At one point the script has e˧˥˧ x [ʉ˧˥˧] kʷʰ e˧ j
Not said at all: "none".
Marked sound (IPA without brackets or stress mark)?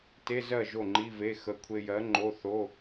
ə˧˥˧